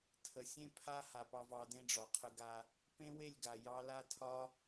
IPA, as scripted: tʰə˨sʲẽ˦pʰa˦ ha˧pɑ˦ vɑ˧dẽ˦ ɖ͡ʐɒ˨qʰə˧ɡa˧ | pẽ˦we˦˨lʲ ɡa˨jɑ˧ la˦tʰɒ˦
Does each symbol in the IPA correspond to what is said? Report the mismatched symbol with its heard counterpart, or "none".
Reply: none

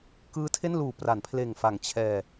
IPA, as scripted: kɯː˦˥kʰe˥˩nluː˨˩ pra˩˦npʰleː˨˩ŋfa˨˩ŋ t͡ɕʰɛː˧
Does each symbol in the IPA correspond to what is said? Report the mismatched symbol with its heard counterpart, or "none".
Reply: kʰ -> tʰ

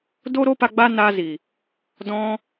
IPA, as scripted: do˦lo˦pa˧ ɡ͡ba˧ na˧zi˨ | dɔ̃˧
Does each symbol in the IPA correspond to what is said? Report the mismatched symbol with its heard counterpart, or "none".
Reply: l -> ɾ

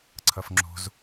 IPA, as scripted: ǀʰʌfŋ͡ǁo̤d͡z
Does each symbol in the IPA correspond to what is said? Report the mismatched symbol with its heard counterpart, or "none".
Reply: d͡z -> z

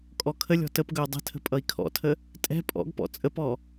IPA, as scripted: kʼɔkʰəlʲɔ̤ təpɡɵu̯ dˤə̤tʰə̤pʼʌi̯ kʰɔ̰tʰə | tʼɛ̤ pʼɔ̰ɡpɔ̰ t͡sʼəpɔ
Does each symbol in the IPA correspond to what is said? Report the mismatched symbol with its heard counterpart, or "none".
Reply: none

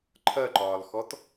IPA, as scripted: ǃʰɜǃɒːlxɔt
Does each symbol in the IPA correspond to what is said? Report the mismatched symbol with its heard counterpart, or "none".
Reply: none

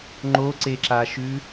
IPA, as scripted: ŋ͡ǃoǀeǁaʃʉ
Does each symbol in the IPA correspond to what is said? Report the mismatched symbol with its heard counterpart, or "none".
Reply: none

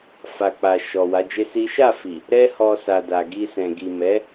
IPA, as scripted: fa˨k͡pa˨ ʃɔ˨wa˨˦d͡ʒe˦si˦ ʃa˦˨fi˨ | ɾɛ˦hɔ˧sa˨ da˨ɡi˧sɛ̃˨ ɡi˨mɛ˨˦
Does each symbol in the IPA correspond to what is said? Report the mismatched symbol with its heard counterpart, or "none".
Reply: none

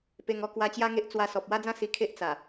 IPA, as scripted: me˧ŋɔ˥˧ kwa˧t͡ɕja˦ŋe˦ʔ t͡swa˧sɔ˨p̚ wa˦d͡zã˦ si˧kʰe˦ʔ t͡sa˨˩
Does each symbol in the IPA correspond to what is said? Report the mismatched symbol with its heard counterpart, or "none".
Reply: m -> p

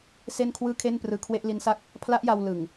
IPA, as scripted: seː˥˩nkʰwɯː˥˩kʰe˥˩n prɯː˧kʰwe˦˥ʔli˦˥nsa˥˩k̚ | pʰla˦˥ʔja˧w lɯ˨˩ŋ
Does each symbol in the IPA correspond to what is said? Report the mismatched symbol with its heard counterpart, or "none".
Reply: eː˥˩ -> e˥˩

